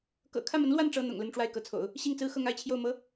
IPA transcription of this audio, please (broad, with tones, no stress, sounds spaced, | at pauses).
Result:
k ɤ̰˨˩ kʰ ä˥˩ m ə˧˥ n l w a˥˩ n ʈ͡ʂ ɤ˥ n̪ ʊ̰˨˩ ŋ l ə˥˧ n ʈ͡ʂ w a˥˩ ɪ̯ k ɤ˧˥ t͡sʰ o̰˨˩˦ ʊ̯ | ɕ i˥˩ ŋ t͡s ɹ̩˥ x ɤ˥˧ ŋ a˥˧ ɪ̯ t͡ɕʰ j o˥˩ ʊ̯ m ɤ˧˥